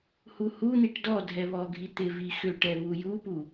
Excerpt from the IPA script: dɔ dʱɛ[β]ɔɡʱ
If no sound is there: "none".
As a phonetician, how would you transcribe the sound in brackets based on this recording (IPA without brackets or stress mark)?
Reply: β